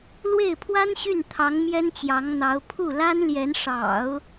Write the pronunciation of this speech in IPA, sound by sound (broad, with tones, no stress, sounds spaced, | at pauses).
l w e˥˩ ɪ̯ pʰ w a˥ n ɕ y˥˩ n t̪ʰ ɑ˧˥ ŋ m j ɛ˥ n t͡ɕ j ɑ˧˥ ŋ n̪ ɑ˧˥ ʊ̯ pʰ u˥˩ l a˥ n l j ɛ˧˥ n ʂ ɑ̰˨˩˦ ʊ̯